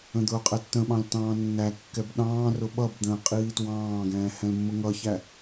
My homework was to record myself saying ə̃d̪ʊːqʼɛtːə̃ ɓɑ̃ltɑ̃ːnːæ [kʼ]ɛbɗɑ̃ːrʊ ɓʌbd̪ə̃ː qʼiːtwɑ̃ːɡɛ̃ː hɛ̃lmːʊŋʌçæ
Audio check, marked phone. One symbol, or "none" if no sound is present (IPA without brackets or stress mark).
kː